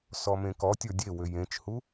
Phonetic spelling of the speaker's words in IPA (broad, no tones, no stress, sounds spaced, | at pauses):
s ɔ m ẽ k ɔ tʲ ə˞ dʲ e w ʏ j ẽ t͡ʃ h u